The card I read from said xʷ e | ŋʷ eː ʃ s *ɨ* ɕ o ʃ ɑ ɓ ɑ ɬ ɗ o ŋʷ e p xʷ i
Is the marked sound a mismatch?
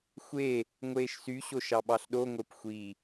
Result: yes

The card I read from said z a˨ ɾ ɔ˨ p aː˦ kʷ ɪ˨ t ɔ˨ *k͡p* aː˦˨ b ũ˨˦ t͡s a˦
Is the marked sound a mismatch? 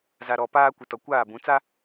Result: yes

